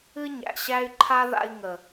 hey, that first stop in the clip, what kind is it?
click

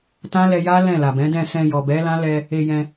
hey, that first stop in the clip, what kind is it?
plain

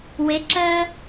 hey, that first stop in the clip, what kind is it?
click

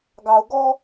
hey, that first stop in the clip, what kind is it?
plain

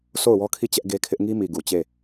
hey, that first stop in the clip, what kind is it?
aspirated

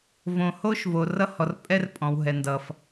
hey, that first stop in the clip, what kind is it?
ejective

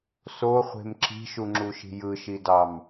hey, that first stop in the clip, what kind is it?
click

